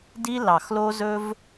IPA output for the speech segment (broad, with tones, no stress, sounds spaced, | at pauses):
d i˦ l ɑ˨˩ x l o˦ z ɵ˦ v